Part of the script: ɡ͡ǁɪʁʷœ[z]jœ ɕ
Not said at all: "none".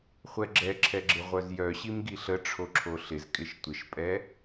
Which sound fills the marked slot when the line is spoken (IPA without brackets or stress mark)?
z